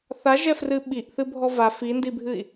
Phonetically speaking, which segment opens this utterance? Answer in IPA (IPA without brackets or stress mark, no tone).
θ